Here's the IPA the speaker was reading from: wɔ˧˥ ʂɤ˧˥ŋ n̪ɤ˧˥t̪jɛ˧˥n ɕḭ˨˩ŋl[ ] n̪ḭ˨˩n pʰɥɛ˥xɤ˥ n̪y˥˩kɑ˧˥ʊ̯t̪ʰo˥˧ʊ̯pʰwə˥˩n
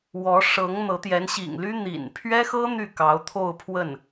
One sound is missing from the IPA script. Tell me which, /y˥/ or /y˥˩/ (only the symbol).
y˥